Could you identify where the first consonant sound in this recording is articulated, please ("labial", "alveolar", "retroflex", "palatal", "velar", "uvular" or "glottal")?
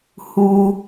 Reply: glottal